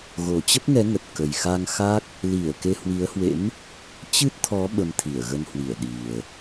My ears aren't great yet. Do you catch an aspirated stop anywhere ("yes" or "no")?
yes